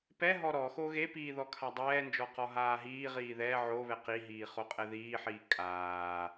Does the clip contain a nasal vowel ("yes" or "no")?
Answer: no